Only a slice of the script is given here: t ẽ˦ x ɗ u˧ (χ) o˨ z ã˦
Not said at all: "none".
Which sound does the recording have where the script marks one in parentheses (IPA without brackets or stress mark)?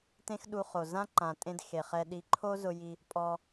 χ